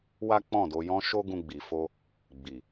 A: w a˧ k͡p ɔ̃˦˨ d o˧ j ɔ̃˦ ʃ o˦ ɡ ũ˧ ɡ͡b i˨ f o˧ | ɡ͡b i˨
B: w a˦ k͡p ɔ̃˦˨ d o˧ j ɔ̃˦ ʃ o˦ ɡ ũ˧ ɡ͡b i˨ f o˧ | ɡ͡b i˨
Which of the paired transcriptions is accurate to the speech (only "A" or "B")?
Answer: B